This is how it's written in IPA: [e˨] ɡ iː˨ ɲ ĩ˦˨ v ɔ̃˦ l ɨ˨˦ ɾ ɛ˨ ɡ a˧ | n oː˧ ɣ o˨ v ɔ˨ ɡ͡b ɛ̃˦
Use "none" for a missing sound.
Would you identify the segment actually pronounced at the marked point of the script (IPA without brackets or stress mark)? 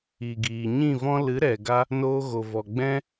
i˨